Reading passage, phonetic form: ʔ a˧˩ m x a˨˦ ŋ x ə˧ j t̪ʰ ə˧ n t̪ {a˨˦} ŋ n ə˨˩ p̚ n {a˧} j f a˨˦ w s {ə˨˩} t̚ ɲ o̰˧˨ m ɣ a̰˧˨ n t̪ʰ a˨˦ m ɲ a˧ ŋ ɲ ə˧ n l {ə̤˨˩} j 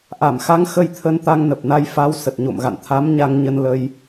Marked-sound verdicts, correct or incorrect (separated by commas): incorrect, correct, correct, incorrect